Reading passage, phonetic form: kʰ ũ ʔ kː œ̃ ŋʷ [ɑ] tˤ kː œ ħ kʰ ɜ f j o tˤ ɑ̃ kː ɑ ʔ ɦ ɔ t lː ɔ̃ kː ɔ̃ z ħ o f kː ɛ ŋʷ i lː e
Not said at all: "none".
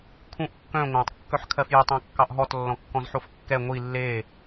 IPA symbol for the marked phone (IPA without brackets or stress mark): ɑ̃